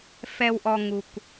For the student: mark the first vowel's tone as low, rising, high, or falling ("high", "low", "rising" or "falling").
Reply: low